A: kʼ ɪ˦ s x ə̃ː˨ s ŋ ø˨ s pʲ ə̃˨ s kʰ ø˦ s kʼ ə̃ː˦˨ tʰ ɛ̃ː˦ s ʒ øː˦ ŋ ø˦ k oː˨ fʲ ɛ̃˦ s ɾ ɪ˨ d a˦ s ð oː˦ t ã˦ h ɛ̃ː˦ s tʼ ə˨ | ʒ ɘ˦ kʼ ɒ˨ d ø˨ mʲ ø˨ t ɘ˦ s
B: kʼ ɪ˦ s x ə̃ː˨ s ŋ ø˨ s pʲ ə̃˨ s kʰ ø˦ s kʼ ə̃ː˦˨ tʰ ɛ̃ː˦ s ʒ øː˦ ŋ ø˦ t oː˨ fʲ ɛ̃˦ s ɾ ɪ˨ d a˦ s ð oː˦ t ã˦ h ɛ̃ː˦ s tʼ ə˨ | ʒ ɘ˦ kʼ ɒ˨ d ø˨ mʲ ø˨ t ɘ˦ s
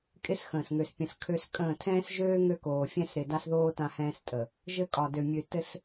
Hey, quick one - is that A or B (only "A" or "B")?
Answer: A